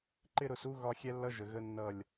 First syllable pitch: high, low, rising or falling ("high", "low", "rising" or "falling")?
high